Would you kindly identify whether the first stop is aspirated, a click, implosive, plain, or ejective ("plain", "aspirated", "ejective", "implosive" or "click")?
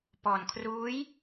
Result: plain